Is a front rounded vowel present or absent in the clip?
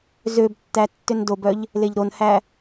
present